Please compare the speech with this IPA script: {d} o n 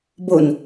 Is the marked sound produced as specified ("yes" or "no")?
no